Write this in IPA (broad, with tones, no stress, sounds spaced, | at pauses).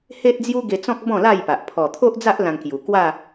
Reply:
h e˦ t̚ d͡z j u˦ ɡ e˧ t͡s ɔ̃˦ k̚ b ɔ̃˥˧ l a˥˧ j p a˨ ʔ pʰ ɔ˨˩ t̪ʰ o˦ ʔ d͡z a˦ ʔ l ã˧ ŋ k j u˨˩ k w a˥˧